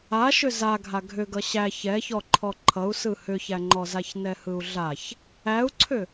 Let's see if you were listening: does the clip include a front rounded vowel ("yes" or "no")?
yes